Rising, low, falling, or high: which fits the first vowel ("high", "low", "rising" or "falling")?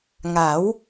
rising